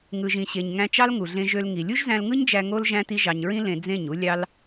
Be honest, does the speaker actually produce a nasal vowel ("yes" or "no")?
yes